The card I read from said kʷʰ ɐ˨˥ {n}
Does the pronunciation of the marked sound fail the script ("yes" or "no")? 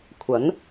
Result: no